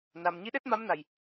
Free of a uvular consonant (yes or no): yes